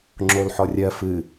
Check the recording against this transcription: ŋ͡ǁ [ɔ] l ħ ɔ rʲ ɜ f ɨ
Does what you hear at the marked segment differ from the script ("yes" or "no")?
yes